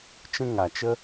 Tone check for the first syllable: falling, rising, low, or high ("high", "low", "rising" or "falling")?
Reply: high